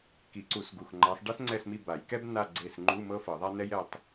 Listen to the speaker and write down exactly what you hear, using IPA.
k i˨˩˦ ǀ u˨˩˦ s ɡ u˩˧˩ x ŋ͡ǃ a˨˦ sˤ ɖ ɛ˥ s ŋ͡ǀ ɛ˦˨ s m i˦˨ b a˨˩˦ j k ɛ˥ b n a˦˨ ɡ͡ǀ e˦˨ s ŋ͡ǃ u˧˥˧ m ɤ˥ f ɤ˨˩˦ ðˤ a˥ n ɛ˥ j ɛ˦˨ tˤ

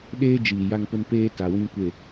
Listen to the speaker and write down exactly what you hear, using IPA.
ɗ eː˦ d͡ʒ iː˨ j a˦ ŋ p ʊ˦ n p eː˦ t a˨ w ĩ˦ kʷ e˦˨

